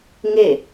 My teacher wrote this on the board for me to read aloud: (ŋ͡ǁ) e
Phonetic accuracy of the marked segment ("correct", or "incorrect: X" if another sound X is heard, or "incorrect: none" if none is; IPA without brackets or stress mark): incorrect: ŋ